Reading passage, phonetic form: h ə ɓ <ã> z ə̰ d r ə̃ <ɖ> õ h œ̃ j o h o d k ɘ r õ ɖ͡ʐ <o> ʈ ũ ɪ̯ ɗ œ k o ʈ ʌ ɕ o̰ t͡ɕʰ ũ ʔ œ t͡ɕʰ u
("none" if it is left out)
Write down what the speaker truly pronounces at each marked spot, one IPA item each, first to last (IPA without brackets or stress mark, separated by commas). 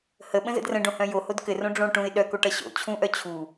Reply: ə̃, ɖ, õ